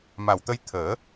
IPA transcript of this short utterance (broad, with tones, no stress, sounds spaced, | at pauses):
m a˨˩ w t̪ ə˧ j t̪ʰ əː˨˩˦